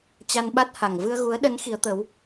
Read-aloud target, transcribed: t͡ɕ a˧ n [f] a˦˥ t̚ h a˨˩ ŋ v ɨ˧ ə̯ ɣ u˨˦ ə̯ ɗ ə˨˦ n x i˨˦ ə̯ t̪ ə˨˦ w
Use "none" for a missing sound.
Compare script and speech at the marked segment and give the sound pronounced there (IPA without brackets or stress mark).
ɓ